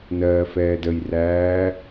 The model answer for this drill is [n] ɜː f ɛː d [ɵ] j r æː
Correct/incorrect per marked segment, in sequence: correct, incorrect

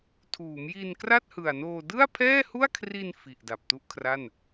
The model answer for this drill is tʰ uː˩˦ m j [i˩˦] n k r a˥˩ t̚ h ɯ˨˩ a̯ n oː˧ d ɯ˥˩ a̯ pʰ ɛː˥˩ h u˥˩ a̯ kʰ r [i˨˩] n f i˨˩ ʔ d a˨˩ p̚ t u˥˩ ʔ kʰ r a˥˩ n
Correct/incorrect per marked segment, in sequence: incorrect, incorrect

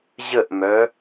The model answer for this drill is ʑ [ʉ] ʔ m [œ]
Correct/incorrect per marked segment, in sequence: incorrect, correct

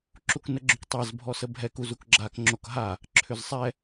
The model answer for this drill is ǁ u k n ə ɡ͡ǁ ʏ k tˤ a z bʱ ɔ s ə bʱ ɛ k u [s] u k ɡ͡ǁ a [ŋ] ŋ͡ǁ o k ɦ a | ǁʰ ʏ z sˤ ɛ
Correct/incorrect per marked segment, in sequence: incorrect, incorrect

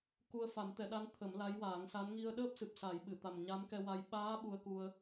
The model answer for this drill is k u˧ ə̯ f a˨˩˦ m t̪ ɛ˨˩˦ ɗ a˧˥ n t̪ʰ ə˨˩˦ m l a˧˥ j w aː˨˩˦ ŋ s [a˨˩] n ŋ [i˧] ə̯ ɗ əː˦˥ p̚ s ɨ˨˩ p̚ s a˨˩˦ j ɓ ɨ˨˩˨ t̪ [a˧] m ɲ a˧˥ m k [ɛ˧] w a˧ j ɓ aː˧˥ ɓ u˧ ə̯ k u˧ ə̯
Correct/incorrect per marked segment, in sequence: incorrect, correct, incorrect, correct

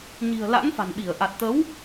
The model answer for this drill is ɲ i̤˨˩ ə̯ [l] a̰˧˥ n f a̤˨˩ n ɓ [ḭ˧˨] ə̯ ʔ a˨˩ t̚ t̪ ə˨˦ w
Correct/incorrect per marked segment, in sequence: correct, incorrect

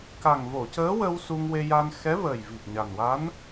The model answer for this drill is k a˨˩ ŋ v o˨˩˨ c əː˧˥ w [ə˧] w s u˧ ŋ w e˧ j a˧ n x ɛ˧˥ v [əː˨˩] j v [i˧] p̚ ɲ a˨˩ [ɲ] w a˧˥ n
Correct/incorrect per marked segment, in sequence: correct, correct, incorrect, incorrect

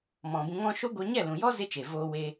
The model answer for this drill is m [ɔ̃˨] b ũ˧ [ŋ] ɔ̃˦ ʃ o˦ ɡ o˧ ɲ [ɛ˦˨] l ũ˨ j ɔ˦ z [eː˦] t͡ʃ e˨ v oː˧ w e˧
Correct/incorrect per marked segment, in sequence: correct, correct, correct, incorrect

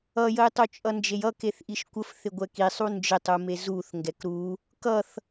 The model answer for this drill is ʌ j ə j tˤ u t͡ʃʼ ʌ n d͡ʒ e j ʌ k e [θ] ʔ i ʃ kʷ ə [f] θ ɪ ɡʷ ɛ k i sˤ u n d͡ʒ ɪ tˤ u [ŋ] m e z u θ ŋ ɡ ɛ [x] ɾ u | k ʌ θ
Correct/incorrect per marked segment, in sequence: correct, correct, incorrect, incorrect

